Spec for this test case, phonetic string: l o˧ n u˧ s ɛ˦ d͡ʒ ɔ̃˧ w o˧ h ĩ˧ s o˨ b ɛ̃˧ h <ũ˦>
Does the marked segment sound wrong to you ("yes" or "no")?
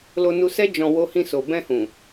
yes